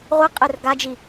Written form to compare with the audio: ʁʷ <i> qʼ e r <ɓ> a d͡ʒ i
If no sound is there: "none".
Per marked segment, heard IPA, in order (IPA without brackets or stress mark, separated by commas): i, ɡ